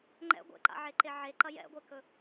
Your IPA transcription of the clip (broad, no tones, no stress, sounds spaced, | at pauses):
ŋ͡ǃ ɛ̰ ɡʷ ḛ ǃ a̰ ʕ e ǃ e ʕ e ǃ ɐ j ɛ̰ ɡʷ e k ɵ